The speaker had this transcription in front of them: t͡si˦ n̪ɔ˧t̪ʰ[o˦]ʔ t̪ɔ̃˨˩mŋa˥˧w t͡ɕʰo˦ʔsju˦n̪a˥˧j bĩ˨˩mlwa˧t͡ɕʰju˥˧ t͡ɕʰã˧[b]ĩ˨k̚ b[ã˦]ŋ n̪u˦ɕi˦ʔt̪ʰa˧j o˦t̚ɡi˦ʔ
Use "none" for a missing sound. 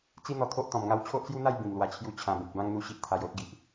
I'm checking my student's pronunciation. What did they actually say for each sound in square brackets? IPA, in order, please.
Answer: o˦, b, ã˦

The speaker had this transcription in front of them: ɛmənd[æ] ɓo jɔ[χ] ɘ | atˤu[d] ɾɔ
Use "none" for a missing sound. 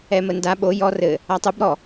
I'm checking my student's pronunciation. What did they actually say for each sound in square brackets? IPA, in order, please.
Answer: a, r, b

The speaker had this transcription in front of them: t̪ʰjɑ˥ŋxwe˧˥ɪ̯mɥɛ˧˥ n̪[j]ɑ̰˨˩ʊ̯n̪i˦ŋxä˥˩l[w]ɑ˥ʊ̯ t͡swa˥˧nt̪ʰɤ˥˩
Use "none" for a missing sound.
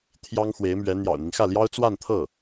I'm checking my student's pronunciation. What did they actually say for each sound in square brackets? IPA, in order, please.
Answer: j, j

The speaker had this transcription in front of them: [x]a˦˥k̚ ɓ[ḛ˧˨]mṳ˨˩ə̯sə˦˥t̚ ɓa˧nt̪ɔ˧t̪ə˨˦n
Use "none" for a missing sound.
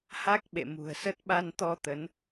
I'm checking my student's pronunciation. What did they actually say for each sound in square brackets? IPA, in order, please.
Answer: h, ḛ˧˨

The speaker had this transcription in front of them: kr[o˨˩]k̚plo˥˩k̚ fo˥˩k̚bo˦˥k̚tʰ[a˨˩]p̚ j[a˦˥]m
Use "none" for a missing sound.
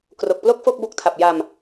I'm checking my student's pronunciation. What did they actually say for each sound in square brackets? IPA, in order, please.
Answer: o˨˩, a˨˩, a˧

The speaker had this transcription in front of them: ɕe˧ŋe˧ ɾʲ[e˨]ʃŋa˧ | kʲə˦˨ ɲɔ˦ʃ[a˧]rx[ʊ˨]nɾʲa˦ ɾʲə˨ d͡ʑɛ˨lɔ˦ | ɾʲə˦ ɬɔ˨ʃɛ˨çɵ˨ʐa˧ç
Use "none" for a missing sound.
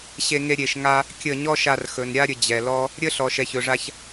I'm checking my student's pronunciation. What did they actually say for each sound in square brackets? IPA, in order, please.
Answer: e˨, a˧, ɵ˨

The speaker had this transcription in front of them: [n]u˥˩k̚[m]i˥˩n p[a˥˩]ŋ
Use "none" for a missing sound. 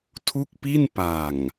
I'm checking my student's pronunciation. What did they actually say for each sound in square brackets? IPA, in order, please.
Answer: tʰ, p, a˨˩

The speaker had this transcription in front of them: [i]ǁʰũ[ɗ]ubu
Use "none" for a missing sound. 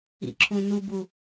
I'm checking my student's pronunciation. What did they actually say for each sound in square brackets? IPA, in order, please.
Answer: ḭ, n

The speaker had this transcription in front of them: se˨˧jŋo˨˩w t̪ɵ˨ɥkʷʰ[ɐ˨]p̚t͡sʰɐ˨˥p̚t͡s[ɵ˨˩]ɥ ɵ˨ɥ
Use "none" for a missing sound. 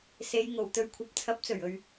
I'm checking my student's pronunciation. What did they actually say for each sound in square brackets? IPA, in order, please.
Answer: ɐ˨, ɵ˨˩

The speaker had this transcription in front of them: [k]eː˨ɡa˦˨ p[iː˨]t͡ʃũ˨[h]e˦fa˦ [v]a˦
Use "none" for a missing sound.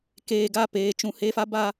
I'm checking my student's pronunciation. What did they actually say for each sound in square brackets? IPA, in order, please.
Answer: k, eː˨, h, b

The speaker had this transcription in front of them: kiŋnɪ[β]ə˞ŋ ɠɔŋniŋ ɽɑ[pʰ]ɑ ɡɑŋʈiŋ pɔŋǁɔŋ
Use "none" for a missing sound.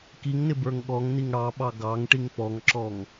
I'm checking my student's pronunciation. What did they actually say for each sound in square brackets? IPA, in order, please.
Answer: b, ɓ

